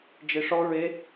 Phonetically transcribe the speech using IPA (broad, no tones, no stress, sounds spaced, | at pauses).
d͡ʒ e ʂ ɔ ɹ e